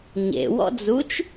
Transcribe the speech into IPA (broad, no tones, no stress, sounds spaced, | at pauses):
ɲ ḛ w ɔ̰ d͡z u t͡ʃ